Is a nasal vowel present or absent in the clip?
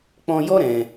present